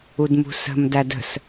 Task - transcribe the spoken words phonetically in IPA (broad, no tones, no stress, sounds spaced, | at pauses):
u d m ṳ s ə̤ m d æ d ə̤ s